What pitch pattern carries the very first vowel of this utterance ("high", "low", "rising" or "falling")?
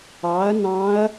rising